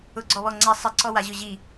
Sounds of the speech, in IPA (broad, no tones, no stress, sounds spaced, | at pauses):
ʊ ɡ͡ǀ ɔ β ɔ ŋ͡ǀ ɛ sˤ ɪ ǀ ɔ w a ʑ ʊ ʑ i